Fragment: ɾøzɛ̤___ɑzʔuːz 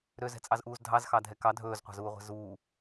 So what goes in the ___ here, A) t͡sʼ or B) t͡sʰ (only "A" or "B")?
A